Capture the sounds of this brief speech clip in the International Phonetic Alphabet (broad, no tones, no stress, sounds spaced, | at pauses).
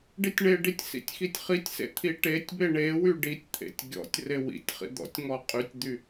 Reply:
ɖ i tʲ ɳ e ɖ i tʲ s ḭ tʲ x i tʲ χ i tʲ s ḛ t̪ʰ i ʈ e tʲ b e ɳ e w y ɖ i tʲ t̪ʰ ḛ tʲ ɡʲ ɔ̰ tʲ r e w ḭ tʲ χ ḭ d̪ ɔ̰ tʲ ŋ ɔ qʼ y tʲ d̪ y